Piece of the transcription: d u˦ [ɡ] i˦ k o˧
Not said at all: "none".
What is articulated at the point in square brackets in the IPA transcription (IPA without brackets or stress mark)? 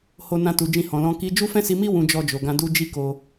d͡ʒ